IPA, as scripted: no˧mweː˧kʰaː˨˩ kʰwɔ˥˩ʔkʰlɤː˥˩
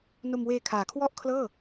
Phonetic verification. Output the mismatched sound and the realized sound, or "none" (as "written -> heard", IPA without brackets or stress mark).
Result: none